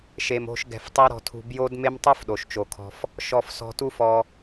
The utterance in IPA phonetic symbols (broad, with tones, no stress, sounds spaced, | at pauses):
ʃ e˧ m o̤˦ ʃ ɡ ɛ̤˧ f tˤ e˦ ɾ ɔ̤˧ tʰ ṳ˧ b j o˦ d m e˦ m tˤ u˦ f ɗ o˨ ʃ t͡ʃ o˨ kʰ ɔ̤˧ f | ʃ ɔ˧ f s ɔ̤˧ t u˦ f ɔ˧